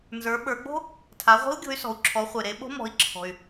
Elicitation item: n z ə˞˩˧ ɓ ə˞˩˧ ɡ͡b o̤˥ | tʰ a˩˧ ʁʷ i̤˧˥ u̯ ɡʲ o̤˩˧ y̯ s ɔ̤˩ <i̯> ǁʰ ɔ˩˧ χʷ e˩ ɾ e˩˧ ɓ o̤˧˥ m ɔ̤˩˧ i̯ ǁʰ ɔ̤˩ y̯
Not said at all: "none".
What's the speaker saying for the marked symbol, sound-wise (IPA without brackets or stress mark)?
u̯